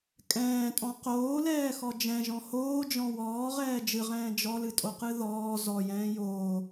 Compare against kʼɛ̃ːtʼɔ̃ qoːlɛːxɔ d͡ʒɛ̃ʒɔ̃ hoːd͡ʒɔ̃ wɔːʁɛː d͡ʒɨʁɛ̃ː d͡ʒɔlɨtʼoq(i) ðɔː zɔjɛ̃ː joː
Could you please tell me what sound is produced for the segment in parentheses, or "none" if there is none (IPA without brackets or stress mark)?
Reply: ɨ